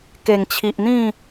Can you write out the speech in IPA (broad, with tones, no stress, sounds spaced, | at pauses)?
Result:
k e˨˩ ŋ t͡ɕʰ i˨ ʔ n̪ ĩ˥˧